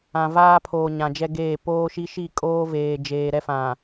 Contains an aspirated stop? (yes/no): yes